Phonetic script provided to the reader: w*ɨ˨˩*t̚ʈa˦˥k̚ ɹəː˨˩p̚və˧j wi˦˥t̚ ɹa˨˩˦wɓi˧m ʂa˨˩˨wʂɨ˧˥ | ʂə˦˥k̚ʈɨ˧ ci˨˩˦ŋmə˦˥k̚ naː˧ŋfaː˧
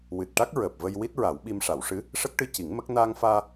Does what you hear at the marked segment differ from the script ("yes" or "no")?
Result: no